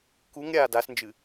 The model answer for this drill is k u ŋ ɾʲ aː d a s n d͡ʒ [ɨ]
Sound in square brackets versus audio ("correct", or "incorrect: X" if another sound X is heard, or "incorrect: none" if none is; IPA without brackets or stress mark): correct